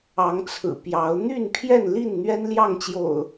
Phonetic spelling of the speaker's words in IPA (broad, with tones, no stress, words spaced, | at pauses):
ɑ˨˦ŋt͡sʰɹ̩˨˩ pjɑ˨˦ʊ̯ n̪y˥˨npʰjɛ˥˨nli˥˨n n̪ɥɛ˦nljɑ˥˨ŋt͡ɕjo̰˨˩ʊ̯